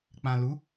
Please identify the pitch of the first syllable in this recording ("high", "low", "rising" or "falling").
low